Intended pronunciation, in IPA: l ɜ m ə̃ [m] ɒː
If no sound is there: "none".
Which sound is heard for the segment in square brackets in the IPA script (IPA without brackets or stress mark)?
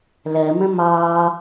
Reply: m